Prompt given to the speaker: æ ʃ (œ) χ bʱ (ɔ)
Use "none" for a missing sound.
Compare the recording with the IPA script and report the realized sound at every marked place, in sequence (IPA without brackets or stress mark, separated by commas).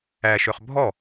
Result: œ, ɔ